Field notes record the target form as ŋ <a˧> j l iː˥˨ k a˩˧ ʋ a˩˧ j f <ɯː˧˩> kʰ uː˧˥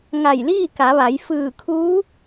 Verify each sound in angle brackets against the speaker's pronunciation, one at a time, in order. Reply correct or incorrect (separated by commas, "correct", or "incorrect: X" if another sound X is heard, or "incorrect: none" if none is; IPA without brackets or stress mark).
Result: incorrect: a˧˩, correct